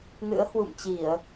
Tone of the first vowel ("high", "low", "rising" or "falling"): rising